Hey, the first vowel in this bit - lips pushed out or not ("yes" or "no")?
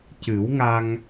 no